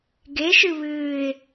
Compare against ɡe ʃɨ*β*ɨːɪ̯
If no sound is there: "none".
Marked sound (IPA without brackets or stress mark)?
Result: β